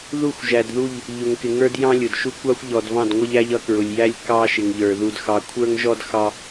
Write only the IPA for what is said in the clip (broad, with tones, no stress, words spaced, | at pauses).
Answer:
ðu˦˨xʷʒæ˨dðu˦˨ʎ | ʎʊ˨ŋkɪ˨ŋə˞˦d jɑ̃˦lʲʊ˨dʃu˦ kʷɑ˦xʷʎɔ˨dvɑ̃˦˨d ŋʷʌ˦ʎæ˦ʎ ʌ˦ kɹʊ˨lʲjæ˦lʲ kɑ˦ ʃɪ˨ŋʎə˞˨ ðu˨dxɑ˨ kʷʰə˞˦ŋʒɔ˦dxɑ˦